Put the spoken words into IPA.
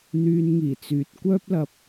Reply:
n̪ yː˧ n ŋ iː˨˩ t͡s yː˨ t̚ kʷ œː˥ p̚ l ɐ˧ p̚

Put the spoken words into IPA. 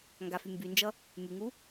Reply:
ŋ ɡ a f y m b y n d͡ʒ ʌ | m y ŋ u

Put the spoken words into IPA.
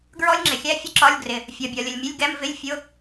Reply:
ɡ ɹ ɔ˥ lʲ ŋ͡ǁ ɪ˨ xʲ æ˥ fʲ ʊ˥ ǁ ɒ˧˥˧ lʲ ɡ r ɪ˨ | fʲ ɒ˨ bʲ ɒ˨ lʲ ə˨ lʲ mʲ ə˧˥˧ lʲ ɡ ɛ˧˥˧ m v ɪ˧˥˧ lʲ fʲ ʊ˧˥˧

